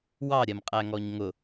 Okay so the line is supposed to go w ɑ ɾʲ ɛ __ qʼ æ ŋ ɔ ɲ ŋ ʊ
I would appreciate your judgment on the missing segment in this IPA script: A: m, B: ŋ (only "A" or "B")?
A